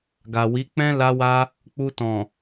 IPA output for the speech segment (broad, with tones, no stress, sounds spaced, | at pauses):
ɡ a˨ w i˨˦ k͡p ɛ̃˦ l a˧ w a˧ | k͡p u˧ t ɔ̃˨